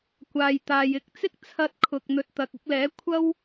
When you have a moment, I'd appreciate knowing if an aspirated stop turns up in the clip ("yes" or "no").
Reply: yes